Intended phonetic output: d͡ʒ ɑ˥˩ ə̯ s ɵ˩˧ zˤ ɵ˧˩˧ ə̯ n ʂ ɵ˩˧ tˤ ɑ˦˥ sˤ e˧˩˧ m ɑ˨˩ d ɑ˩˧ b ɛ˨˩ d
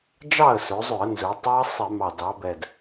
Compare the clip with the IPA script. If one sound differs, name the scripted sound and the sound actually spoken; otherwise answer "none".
ʂ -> z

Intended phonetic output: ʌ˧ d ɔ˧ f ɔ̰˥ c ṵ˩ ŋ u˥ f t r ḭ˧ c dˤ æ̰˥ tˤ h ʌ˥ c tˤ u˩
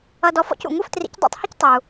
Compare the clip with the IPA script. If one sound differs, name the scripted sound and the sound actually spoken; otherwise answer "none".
none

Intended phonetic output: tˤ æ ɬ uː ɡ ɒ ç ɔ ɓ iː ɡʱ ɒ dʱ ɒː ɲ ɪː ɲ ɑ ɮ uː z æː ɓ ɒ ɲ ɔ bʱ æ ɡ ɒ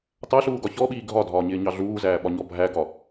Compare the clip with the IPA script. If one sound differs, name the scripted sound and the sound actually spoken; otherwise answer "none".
none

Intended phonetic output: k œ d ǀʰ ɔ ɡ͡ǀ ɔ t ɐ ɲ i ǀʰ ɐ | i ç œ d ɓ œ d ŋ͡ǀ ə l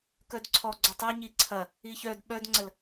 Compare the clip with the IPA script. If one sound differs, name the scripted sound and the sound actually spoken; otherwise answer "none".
t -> tˤ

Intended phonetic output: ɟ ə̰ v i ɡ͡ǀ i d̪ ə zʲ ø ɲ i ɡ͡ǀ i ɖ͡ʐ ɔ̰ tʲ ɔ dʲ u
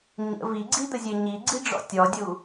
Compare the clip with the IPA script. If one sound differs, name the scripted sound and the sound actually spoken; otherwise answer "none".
ɟ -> ɲ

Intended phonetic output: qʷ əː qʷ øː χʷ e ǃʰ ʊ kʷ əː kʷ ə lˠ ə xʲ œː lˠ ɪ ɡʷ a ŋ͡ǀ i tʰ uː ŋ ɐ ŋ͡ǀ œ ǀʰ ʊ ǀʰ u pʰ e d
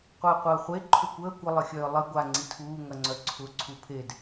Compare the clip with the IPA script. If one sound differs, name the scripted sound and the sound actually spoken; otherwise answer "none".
øː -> əː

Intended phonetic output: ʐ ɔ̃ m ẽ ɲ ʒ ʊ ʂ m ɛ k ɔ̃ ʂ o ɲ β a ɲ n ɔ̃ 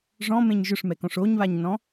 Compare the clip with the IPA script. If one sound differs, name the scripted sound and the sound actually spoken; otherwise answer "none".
none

